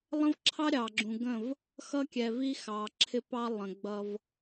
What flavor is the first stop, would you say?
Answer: click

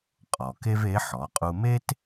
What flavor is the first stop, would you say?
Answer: ejective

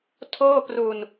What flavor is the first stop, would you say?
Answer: aspirated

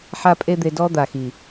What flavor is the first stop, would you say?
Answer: ejective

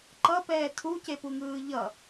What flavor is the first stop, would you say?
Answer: click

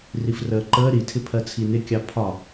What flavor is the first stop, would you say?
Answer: click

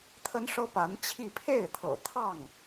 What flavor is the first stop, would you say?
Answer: aspirated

